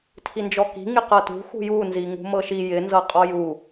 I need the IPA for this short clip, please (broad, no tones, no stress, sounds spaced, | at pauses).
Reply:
tʰ i n d͡ʒ ɔ k i̤ ŋ i q ɤ t ṳ x ṳ j u n z i ŋ ṳ m ɤ ʃ i j ɪ n z ɤ qʼ ɔ j u